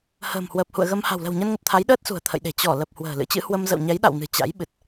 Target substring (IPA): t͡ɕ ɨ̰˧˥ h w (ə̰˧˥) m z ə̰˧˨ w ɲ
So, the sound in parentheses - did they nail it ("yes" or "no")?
no